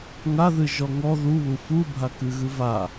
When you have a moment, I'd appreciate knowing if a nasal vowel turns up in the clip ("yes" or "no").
no